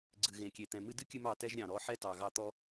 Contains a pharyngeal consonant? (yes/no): yes